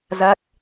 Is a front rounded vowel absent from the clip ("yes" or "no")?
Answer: yes